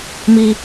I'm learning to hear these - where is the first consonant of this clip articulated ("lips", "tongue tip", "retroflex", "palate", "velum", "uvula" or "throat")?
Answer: lips